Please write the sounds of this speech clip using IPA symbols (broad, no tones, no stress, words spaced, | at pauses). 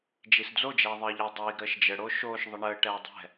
d͡ʒisd͡zod͡ʒɛː ðˤəːʎəːdˤiːɡɾəːʃ d͡ʒəɽo ʃoːʃ ðˤəɳəːʈɛː dˤɛ̤